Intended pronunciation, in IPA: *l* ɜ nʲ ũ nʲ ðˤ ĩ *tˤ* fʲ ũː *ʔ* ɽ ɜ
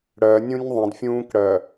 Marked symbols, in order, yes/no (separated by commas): no, no, no